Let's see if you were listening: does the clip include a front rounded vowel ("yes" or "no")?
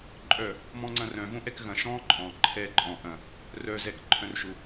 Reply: yes